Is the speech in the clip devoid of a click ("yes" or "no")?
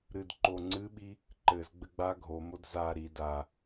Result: no